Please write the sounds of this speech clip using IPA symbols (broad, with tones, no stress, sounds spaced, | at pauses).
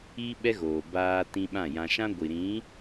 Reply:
iː˦ ɓ ɛ˦ ɣ oː˨ b aː˦ t ĩ˦ ɓ ã˦˨ j ã˦ ʃ ã˦ ɡʷ i˨ ɾ ĩ˨˦